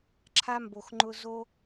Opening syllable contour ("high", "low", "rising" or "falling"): high